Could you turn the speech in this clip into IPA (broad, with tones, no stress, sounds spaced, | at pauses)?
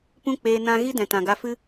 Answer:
p ũ˦ k͡p eː˧ n ã˧ ɣ i˦ d ɛ̃˨ t ã˨ ɡ a˧ f ɨ˦